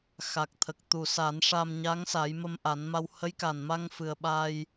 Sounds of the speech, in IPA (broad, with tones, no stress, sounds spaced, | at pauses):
x a˨˩ k̚ t̪ʰ ə˨˩ k̚ t̪ u˨˩ s a˨˩˦ n ʂ a˧ m ɲ a˧˥ ŋ s a˨˩˦ j m ə˧ m ʔ a˨˩˦ n m a˧ w h ə˧˥ j k a˨˩ n m a˧ ŋ f ɨ˨˩ ə̯ ɓ aː˧ j